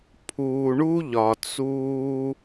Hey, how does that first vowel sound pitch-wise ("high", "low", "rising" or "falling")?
low